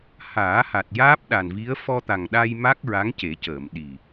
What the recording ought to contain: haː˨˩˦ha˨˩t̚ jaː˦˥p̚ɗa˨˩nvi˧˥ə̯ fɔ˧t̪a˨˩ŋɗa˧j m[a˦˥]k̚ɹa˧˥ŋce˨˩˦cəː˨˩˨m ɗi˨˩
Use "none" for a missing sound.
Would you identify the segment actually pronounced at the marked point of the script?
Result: a˦˥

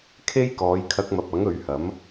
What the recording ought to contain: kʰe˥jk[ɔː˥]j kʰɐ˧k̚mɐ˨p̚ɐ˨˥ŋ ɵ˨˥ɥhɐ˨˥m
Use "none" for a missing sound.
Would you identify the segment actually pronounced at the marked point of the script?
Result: ɔː˨˧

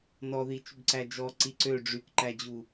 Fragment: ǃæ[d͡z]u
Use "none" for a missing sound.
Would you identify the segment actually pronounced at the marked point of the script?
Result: d͡ʑ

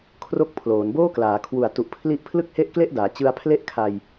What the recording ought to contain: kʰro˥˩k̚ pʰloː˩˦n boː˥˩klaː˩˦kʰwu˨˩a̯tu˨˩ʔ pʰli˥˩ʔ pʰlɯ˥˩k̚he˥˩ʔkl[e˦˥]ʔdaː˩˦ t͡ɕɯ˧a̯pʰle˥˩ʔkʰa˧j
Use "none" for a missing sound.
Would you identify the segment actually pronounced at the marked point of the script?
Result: e˥˩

